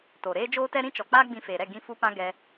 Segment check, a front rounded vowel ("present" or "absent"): absent